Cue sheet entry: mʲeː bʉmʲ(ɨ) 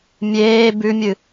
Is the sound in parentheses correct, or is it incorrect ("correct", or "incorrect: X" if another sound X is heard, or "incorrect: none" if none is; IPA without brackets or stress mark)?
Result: correct